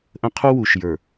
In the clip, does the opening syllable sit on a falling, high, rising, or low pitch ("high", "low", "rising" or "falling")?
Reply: high